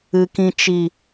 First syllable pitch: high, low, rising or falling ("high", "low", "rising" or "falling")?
low